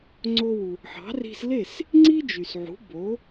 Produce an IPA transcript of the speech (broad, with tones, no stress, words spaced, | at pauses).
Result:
ŋ͡ǀo˧wu˩ | ħɑ̤˩˥ri̤˧s le˥˩s | ŋ͡ǀi˥d͡ʒy˩sʕṳ˩˥ bo˩˥